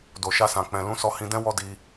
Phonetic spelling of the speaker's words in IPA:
do˨ʃa˧sã˨k͡pɛ̃˨ lũ˨˦sɔ˧ hĩ˧dɛ̃˦ wɔ˦ di˧

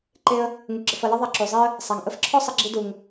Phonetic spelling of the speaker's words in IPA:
ǃe˧ə̯ | ŋu˨ɡ͡ǁə˨fʌ˨ lʌ˦ðˤa˧ ǁu˨zˤe˦ə̯ | sˤa˨ŋ ʔə˧fǁʰɔ˦ sˤʌ˧ɡ͡ǁi˧ du˨ŋ

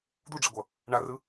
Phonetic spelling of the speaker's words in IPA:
d̪uɖ͡ʐeɡʷʌ | ɳarɯ

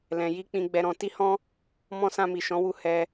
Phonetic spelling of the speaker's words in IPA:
lɛ̃˧ ji˦k͡pĩ˧ ɡ͡bɛ˧ɾɔ̃˧ ti˦hɔ̃˦ | mɔ̃˦ sã˧mi˨ ʃɔ̃˨˦wu˦˨ hɛ˧

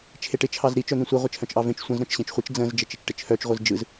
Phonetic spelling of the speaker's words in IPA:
t͡ʃʰeʈɪ t͡ʃʰɑzɾi t͡ʃœn̪ĩsʷɪ ʁʷɪt͡ʃʰœ̃t͡ʃʔɑvẽt͡ʃ sʷə̃z ɾœ̃t͡ʃɕẽt͡ʃχʷit͡ʃ d͡zə̃z d͡ʒət͡ʃɪt͡ʃʈɪt͡ʃʰœt͡ʃ ʁʷɯzd͡ʒɯz

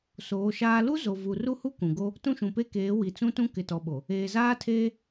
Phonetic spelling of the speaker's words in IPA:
soː˨˦ʃaː˦ lu˦ zo˨vu˨ru˦hu˦ kũ˨ɡo˦ | tũ˦ʃũ˨pe˦keː˨˦ wi˨t͡sũ˦tũ˦ kɪ˨tɔ˨ɓo˨ | eː˨zaː˦tʰeː˦

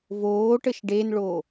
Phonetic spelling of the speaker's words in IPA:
voːʈəʃ ɖenɭoː

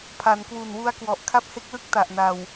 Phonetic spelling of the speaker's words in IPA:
pʰa˩˦nkwu˨˩nwu˦˥a̯kwɔ˨˩ʔ kʰa˦˥p̚he˦˥k̚lɯ˦˥k̚ ta˨˩ʔna˨˩w

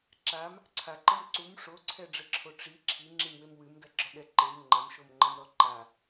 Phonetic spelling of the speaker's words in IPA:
ǁam | ǀʰaǃɘm ǀum ʂoǀʰɛɖ͡ʐɘǁʰo ʈ͡ʂi ǁʰiŋ͡ǁimwem wɨmdɐɡ͡ǁɔɠɛ ǃem ŋ͡ǃɐmʃomŋ͡ǃɐmɾɔ ǃa

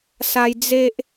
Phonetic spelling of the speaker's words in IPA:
sa˧j d͡ze˦ʔ

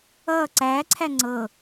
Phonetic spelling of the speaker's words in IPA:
ʌː ǀæːǀʰæ ŋ͡ǀɤ

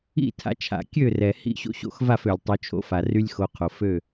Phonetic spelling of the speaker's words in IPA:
ḭ˥˨tʰa̰˨˦t͡ʃʰa̰˩ kʲø˥˨rɛ˩ hḭ˥˨ɕo̰˦ ɕo̰˥˨xva˥˨fø˩lʲ tˤo˨˦t͡ʃʰo̰˦fa˩ry˦lʲ xo˨˦qʰo˩ fø˥˨

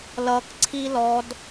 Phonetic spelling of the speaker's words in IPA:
lʌk ǀʰilɔd

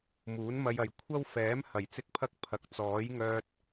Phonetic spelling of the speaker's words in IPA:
muː˨˥nmɐ˧jɐ˨j kʷʰɐ˥wfɛː˨˥m hɐ˨˩j t͡sɪ˥k̚pʰɐ˥k̚ pʰɐ˨˥k̚ t͡sɔː˨˥jŋœː˧t̚

